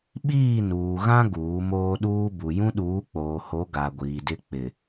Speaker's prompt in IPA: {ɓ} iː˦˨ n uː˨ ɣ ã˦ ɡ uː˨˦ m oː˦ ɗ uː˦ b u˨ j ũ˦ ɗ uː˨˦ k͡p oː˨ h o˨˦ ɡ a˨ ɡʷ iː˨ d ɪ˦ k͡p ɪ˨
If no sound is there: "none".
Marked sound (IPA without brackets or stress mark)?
ɓ